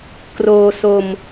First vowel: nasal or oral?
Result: oral